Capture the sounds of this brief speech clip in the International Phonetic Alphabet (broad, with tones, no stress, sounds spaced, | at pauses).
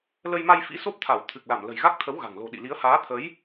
l ə˧ j m a˧ j f ḭ˧˥ s o˦˥ p̚ t̪ʰ a˧˩ w t̪ʰ ɨ˨˩ k̚ l a˧˩ m l ə̤˨˩ j ɣ a˦˥ k̚ t̪ʰ ə˨˦ w ɣ a̤˨˩ ŋ l o̤˨˩ ɗ ḭ˧˨ l i˨˦ ə̯ h aː˨˦ t̪ʰ ə˨˦ j